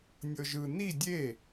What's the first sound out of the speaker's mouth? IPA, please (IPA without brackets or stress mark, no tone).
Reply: nʲ